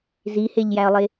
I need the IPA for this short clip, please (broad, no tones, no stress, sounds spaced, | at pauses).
z i h e ʎ j æ ə̯ lˠ e